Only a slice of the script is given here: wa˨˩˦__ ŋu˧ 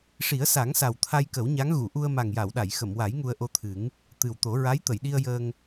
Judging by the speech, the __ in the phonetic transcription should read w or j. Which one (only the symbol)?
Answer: j